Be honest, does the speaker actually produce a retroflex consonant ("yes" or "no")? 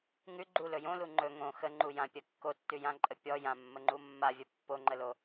no